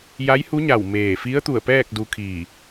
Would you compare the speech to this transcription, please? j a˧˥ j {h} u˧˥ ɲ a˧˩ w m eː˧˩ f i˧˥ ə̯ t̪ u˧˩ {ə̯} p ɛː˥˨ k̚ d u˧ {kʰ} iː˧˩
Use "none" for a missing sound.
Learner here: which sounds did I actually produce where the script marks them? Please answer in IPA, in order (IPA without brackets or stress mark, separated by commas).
h, ə̯, kʰ